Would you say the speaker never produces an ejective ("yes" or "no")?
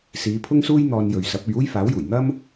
yes